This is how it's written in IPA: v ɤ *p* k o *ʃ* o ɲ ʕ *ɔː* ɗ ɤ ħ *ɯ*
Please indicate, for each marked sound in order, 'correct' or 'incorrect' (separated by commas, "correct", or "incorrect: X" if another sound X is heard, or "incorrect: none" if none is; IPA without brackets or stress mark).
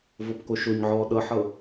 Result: correct, correct, correct, incorrect: ɤ